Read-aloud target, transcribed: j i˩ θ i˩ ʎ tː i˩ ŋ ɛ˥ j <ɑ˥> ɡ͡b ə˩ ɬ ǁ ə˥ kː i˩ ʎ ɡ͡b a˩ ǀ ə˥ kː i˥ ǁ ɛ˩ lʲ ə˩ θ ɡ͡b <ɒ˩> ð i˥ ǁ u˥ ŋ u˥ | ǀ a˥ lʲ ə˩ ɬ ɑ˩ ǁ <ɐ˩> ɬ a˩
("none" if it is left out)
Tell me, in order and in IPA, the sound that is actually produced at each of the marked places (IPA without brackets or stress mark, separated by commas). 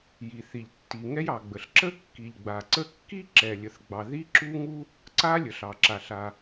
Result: ɑ˩, ɑ˩, a˩